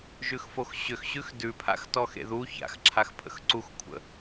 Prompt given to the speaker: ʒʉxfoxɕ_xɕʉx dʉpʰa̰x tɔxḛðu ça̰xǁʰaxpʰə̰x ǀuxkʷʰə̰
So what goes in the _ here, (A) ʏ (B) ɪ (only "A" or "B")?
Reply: A